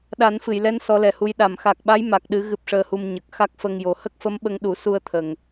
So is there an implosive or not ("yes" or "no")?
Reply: yes